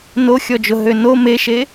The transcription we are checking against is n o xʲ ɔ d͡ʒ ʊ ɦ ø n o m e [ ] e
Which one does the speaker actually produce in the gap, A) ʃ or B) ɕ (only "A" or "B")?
A